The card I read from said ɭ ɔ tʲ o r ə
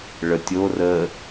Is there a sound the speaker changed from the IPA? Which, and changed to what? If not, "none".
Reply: ɔ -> ə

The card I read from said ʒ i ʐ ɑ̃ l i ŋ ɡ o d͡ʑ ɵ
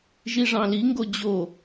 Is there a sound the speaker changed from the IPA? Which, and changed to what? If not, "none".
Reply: ɵ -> o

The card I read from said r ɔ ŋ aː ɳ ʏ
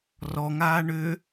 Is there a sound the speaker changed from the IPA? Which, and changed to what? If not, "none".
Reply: none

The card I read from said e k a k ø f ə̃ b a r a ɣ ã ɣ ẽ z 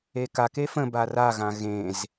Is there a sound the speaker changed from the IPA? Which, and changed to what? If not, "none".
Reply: ø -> e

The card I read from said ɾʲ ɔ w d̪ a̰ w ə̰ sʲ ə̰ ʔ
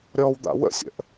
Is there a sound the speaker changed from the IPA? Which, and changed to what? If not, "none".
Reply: none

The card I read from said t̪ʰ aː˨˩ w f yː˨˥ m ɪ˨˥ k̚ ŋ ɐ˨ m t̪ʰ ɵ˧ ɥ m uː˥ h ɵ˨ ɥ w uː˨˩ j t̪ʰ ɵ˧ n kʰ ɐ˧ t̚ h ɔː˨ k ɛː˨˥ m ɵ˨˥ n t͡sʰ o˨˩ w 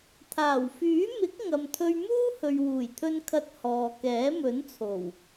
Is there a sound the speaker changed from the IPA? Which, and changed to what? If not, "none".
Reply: none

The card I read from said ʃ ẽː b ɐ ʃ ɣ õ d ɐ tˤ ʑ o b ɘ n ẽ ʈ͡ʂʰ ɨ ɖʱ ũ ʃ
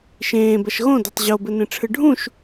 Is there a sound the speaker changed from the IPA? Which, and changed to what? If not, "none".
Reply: none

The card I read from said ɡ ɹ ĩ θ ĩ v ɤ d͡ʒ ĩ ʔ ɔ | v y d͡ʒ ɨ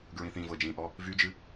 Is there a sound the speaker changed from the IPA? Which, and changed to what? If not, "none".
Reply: none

